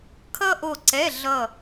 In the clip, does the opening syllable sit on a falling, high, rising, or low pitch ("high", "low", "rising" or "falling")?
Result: high